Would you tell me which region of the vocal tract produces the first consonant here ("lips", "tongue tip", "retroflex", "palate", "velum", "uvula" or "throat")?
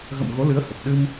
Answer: velum